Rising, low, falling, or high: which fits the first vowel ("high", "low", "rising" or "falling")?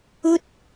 high